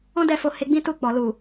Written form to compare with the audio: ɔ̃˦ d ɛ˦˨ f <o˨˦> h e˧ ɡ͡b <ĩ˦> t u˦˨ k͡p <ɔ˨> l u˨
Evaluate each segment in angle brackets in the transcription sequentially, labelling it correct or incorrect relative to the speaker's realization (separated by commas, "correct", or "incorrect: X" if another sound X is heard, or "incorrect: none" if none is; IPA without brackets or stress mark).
incorrect: o˧, correct, correct